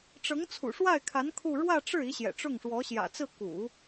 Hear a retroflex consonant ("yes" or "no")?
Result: yes